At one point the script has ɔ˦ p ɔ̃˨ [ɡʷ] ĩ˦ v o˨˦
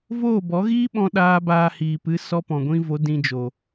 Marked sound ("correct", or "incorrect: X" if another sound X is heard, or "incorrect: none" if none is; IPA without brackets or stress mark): correct